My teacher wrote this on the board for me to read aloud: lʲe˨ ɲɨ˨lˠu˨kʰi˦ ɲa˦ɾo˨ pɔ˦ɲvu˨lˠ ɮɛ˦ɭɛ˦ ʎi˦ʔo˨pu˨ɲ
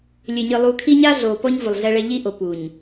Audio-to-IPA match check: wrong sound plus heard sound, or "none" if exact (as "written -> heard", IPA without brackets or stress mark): ɾ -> ɮ